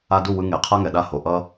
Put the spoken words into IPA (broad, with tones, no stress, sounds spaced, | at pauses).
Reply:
a˧ d u˦˨ w ɯ˧ ŋ e˨ qʰ a˦ ŋ ɛ˨ ɗ a˦˨ h o˨ ʔ ʌ˦